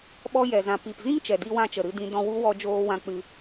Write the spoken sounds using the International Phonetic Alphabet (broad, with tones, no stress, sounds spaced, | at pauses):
ɓ ɔ˧ j ɛ˨ z ã˨ p i˨ p z ĩ˦ ŋ t͡ʃ ɛ˨ d i˧ w ã˧ t͡ʃ ə˨ ɾ ɨ˧ d ĩ˧ d ɔ̃˧ w u˦ w ɔ˧ d͡ʒ oː˧ w ã˧ k͡p ɨ˧